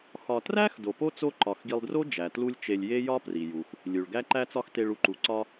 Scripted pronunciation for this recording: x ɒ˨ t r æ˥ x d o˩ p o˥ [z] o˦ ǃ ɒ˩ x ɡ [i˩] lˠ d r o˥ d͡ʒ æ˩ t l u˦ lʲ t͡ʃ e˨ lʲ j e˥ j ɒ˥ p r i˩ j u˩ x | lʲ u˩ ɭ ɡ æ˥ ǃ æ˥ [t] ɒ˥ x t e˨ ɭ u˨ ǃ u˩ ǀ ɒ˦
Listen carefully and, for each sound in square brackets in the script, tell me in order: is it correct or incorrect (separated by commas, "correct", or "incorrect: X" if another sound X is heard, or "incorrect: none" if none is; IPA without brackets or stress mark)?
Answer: incorrect: t͡s, incorrect: i˨, incorrect: t͡s